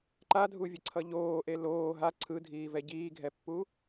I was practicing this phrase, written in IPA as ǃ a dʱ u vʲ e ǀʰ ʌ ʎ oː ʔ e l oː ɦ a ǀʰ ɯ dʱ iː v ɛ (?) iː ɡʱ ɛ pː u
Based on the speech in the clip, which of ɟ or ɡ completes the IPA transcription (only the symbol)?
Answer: ɟ